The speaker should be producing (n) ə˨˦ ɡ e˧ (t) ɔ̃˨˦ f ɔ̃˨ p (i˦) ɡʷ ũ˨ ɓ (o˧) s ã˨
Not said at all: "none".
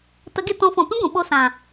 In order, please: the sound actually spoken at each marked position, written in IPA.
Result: t, t, ĩ˦, o˧

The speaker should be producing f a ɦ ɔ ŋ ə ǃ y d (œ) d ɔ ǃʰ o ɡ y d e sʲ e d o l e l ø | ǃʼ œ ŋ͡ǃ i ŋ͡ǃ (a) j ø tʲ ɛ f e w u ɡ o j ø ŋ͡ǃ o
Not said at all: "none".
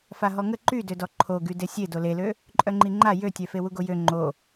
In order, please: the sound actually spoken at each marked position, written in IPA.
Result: ø, a

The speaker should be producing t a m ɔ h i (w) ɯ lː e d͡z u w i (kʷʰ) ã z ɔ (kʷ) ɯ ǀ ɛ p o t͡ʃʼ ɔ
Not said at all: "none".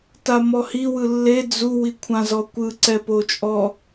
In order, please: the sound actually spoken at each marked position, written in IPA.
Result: w, kʷʰ, kʷ

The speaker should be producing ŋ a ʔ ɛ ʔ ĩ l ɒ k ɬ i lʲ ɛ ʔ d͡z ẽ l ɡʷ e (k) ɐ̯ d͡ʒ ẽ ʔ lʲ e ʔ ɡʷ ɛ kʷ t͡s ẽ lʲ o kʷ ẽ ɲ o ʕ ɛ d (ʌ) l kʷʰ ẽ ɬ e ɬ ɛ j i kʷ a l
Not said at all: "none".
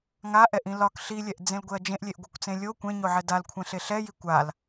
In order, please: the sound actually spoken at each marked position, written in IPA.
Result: none, a

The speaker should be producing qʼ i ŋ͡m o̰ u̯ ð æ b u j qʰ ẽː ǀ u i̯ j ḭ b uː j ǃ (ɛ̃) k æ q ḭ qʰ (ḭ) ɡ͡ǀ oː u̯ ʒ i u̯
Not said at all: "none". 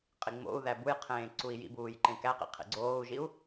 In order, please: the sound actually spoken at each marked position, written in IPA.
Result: ẽ, ḭ

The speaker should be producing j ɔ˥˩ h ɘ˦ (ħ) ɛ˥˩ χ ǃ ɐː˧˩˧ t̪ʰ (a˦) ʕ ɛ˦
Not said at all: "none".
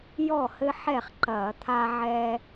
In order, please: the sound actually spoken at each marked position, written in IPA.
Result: ħ, a˦

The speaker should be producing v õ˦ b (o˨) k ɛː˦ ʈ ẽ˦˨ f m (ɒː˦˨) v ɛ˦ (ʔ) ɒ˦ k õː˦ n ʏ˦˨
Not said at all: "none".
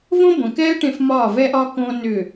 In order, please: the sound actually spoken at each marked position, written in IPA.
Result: õ˨, ɒː˦˨, ʔ

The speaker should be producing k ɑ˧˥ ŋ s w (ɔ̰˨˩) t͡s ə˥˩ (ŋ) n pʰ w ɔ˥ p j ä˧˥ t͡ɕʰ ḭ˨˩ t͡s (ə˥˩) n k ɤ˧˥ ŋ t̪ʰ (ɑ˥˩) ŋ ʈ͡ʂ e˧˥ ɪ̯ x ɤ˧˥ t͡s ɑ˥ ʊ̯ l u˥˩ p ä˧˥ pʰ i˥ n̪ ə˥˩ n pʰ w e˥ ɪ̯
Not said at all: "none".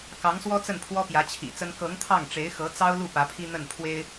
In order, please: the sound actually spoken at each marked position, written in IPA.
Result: ɔ˥, none, ə˥, ɑ˥˩

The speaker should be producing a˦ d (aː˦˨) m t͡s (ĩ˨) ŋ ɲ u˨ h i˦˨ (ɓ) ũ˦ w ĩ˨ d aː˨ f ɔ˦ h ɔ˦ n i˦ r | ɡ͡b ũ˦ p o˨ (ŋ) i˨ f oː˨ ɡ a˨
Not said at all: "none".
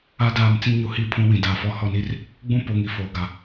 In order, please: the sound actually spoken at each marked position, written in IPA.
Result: aː˦˨, ĩ˦, pʰ, ŋ

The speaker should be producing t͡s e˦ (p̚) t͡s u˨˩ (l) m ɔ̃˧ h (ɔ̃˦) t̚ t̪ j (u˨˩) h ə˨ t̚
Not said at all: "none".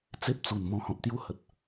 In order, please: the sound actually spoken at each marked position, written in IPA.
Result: p̚, n, ɔ̃˨, u˥˧

